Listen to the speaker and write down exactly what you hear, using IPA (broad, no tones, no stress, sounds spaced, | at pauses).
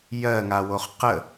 j ɜ ŋ a w o χ q ə